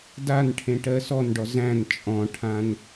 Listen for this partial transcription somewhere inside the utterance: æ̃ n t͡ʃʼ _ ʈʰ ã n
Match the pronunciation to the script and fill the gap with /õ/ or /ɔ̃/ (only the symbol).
ɔ̃